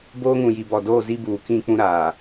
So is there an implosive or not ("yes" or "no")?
no